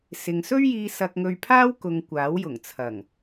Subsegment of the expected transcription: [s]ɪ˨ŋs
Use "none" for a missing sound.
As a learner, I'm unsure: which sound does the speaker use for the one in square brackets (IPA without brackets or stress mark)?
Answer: s